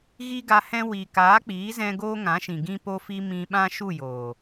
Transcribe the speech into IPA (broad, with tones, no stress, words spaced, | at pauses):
ɣi˦ɡa˧hɛ̃˦ wi˨ kaː˨˦k͡piː˨˦zɛ̃˧ ɡoː˦ŋã˨˦ʃĩ˨ ɡĩ˦ po˦fi˦ mĩ˧ɓã˦ ʃu˦˨joː˨